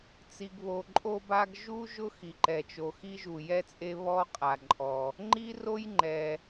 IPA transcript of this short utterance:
t͡si˩ɡβo˩ǃʼo˥ba˥ɡ ʒu˥ ʒʊ˥xi˩ǃɛ˩t͡ʃo˩ xi˥ʒu˩jɛ˥t͡sʼe˥ βɔ˥qʼa˩ǃʼɔ˩ | ŋ͡ǃi˥ro˥jŋ͡ǃɛ˩

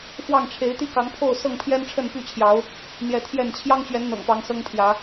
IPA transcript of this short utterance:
fwɑ˥˨ŋ ʈ͡ʂʰe˨˦ɪ̯t̪i˦kɑ˨˦ŋpʰo˥˨ʊ̯ sɤ˥˨ŋpʰjɛ˦nʈ͡ʂʰə˥˨n py˥˨t͡ɕʰjɑ˨˦ʊ̯ | n̪jɛ˨˦t̪ʰjɛ˥˨n t͡ɕʰjɑ˦ŋt͡ɕɥɛ˨˦n n̪ɤ̰˨˩ŋ pɑ˨˦ŋsɤ˦ŋpʰjä˨˦

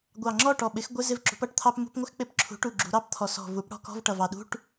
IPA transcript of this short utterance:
ɡʷɑ˨˩ ŋ͡ǁɔ˥˨ʈɔ˨˩ ɓɪ˩˥x ɡʷɪ˧˥˧ zɪ˥˨vǁṳ˩˥pʌ˧˥˧ʈt̪ʰɑ˥p mṳ˧˥˧pŋʷɪ˥xk͡pɪ˧˥˧pǁʰṳ˩˥ ʈu˨˩ɡ͡ǁṳ˩˧ɾɑ˧˥˧pt̪ʰɔ˩˧ sɔ̤˨˩vu˩˥p ɽɔ̤˧˥˧kɔ̤˧˥˧vʈʌ˨˩vɑ˨˩ ɗṳ˧˥˧ʈ

